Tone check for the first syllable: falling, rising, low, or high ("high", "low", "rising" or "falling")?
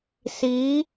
rising